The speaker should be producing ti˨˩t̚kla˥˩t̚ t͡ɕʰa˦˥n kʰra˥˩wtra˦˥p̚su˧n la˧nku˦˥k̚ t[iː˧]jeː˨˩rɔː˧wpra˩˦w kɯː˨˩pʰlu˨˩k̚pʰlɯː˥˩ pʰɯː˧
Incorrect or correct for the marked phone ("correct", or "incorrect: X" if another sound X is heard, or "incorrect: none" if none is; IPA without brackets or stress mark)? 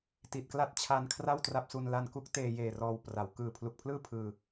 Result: incorrect: eː˧